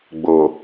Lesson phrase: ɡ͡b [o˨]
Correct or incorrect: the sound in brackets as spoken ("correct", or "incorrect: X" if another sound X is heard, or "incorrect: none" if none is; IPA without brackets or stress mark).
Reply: correct